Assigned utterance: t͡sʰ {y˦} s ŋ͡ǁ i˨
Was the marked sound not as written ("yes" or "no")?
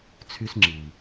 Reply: no